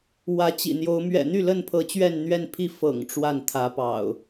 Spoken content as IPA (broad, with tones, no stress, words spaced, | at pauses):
wä˨˦t͡ɕḭ˨˩n̪jo˨˦ʊ̯ mɥɛ̰˨˩n̪y˥˨lə˥˨npʰɤ˨˦ t͡ɕɥɛ˥˨nn̪ɥɛ˥˨npʰi˥˨ fɤ̰˨˩ŋ ʈ͡ʂwa˥˨nt̪ʰä˨˦pɑ̰˨˩ʊ̯